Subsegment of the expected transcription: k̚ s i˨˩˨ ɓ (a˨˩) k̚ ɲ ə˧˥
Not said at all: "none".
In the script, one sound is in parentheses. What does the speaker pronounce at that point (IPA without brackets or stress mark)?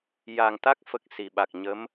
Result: a˨˩